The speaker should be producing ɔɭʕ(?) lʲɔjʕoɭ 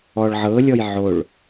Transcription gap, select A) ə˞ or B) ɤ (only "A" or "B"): B